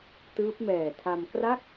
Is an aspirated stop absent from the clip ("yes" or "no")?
no